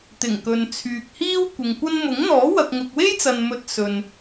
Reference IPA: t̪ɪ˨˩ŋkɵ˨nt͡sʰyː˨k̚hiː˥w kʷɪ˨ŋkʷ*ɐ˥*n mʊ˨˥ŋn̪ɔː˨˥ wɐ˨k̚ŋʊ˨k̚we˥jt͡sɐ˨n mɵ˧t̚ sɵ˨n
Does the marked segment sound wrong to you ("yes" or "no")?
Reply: no